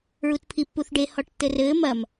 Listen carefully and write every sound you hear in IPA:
ɹ u t pʰ i pː u θ ɖ e h ɔ ʈ tː ɘ r ɘː m ɐ m

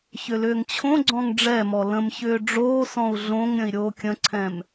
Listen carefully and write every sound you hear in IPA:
ç ʏ l ʏː ŋ t͡ɕʰ õ ɡ͡ǀ ɔ̃ ŋ ɖ͡ʐ ɛ m ɔ l ə̃ m ç ʏː ɖ͡ʐ oː s ɔ̃ u̯ ɮ õ ŋ ɾʲ ə̃ i̯ ɾʲ oː kʲ ə̃ ǀʰ ɛ̃ m

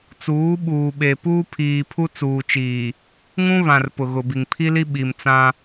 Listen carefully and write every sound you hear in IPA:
t͡s uː˨˦ ɓ uː˨ ɓ e˨ p uː˦ pʰ iː˨ pʰ u˦ t͡s uː˨ t͡ʃ iː˨ | ŋ ũ˦ β ã˨ r p ʊ˨ ɣ ʊ˨ b i˨ ŋ pʰ i˦ l i˦ ɓ i˨ m t͡s ã˦

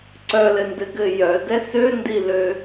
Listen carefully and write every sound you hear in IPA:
ǀ œ l ɘ n d ɘ ɡ ɘ j œ d ɛ s ø n d i l ø

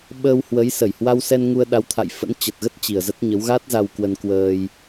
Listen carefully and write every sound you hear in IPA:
ɓ əː˧ w h w ə˨˦ j s ə˧˩ j h w a˧ w s ɛ˧ n ŋ u˧ ə̯ ɗ a˨˦ w t̪ʰ a̰˧˨ j f ə̰˧˥ n t͡ɕ ə˨˩ t̚ ɣ ə˦˥ t̚ t͡ɕ i˨˩ ə̯ z ə˦˥ t̚ ɲ ə˨˦ w ɣ a˦˥ t̚ z a˧ w k w ə˧ n k w əː˧ j

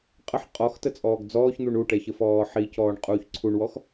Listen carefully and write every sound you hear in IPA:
qʼ ə ħ qʼ ɔ x t ə t͡sʼ ɔː ɡ d͡z ɔː ç n̪ u ɳ u ʈ ɛ ç ə f ɔː ħ i c ɔː ɳ qʼ uː ç ǀʰ u ɳ w ɔ x

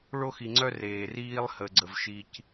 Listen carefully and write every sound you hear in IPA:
ɭ o˦ x i˨ ŋ͡ǀ œ˦ r eː˨ r iː˦ lˠ h ə˨ ɡ͡ǀ ə˨ v ʃ i˨ c

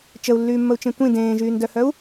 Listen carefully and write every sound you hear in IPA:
t͡ʃ ə u̯ lː yː mː ə u̯ t͡ʃ ẽ tʷ ĩ d ẽː ʒ yː n d œ h œ u̯

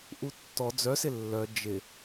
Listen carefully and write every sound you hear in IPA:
ʔ u tː ɔ d͡z œ s ɪ lː œ d͡ʒ ɪ

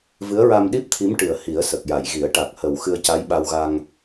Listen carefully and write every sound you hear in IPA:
v ɨ˧˥ ə̯ ɹ a˧ m ɗ i˦˥ p̚ t̪ʰ i˧˥ m ʈ ɨ˨˩ ə̯ h i˨˩˦ ə̯ s ə˨˩ k̚ j a˨˩˨ j ɣ i˨˩˦ ə̯ ʈ a˨˩ k̚ h ə˨˩ w x ɨ˧ ə̯ c a˧˥ j ɓ a˧ w ɣ a˧ ŋ

